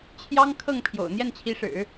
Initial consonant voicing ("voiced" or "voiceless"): voiceless